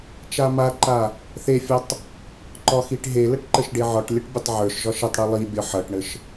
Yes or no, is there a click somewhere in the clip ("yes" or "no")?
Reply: yes